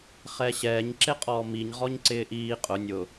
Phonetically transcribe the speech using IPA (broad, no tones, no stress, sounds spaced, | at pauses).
χ ɛ ɕ ɛː ɲ ǁ e qʼ ɔː m i ɲ ʁ ɔ ɲ ǀ ɪː ʔ iː qʼ ʊ nʲ ʊ